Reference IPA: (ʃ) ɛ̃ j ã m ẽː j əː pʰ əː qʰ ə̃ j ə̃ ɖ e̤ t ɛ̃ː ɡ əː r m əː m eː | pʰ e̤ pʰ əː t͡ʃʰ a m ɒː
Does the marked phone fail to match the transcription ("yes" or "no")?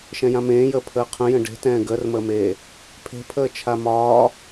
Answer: no